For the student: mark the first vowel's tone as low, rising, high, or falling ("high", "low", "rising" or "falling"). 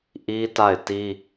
high